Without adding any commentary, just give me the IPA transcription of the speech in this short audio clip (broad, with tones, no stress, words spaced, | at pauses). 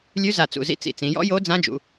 lʲʉ˧˥za˧˩t͡sṵ˧˩ zḭ˧˥t͡sḭ˧˩t͡sĩ˩˧ jɔ̰˧˥jo˧˥ d͡zã˧˥d͡ʒṵ˩˧